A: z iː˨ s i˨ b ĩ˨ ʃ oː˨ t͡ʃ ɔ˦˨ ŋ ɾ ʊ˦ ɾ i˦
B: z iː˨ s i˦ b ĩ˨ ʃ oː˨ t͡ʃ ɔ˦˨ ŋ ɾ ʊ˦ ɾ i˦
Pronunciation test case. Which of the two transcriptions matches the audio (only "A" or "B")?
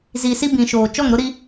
B